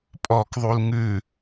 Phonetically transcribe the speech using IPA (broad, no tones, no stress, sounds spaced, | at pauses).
pʼ ɔ k ðˤ u l ŋ ʉ